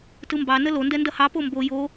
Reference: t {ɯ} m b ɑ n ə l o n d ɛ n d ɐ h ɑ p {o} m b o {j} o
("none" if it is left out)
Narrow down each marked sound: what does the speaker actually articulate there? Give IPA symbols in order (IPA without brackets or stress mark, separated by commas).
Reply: ɯ, o, j